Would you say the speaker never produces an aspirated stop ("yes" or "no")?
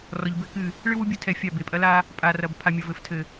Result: no